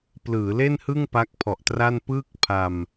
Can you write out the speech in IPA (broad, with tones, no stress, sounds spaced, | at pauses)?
p l ɯː˩˦ l e˥˩ n h ɯ˥˩ ŋ p a˦˥ k̚ pʰ ɔ˨˩ ʔ t r a˥˩ n p ɯː˥˩ k̚ pʰ a˧ m